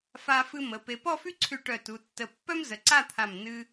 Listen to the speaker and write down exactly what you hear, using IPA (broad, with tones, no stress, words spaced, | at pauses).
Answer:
fa˧ fɨ˧mə˩˧ pe˩˧pɔ˥˧fy˥ǀʰy˧˩ ʈœ˧˩tu˩˧tːə˧˩ pːœ˥m zə˩˧ǀa˥˧t̪ʰa˧˩m nɨ˧